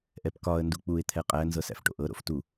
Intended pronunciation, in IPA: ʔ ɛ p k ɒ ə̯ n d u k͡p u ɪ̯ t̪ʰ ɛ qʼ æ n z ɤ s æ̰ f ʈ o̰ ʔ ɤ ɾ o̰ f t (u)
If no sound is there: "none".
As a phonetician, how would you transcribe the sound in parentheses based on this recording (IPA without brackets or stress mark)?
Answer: u